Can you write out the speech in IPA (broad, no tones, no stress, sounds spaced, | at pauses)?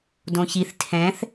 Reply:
d õ ç i θ tʰ ɛ̃ θ